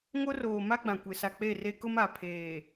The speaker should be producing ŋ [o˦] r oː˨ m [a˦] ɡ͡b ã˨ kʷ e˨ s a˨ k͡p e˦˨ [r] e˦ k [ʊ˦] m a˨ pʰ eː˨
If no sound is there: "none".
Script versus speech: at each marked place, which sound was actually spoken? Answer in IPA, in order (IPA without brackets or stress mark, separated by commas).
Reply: o˦, a˦, r, ʊ˦